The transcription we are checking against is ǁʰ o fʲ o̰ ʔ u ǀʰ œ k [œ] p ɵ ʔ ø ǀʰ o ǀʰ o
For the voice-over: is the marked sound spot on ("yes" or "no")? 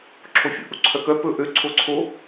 yes